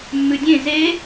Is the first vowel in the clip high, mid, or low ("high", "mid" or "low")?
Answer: high